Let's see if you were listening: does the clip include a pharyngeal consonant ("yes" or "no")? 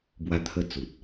no